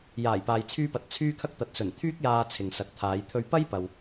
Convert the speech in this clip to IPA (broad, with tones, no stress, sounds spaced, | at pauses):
j aː˨˩ j p aː˨ j t͡sʰ yː˧ p ɐ˨˥ t̚ t͡sʰ yː˥ kʰ ɐ˥ k̚ t̪ ɐ˨ t̚ s ɵ˨˩ n t̪ʰ yː˥ k̚ j aː˧ t͡sʰ ɪ˨ ŋ s ɐ˨˥ k̚ t̪ʰ aː˨˧ j t̪ʰ ɵ˧ ɥ p ɐ˥ j p ɐ˨ w